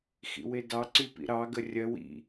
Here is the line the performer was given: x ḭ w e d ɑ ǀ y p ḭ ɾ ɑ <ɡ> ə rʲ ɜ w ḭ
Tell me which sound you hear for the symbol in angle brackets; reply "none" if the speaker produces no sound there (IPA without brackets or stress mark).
ɡ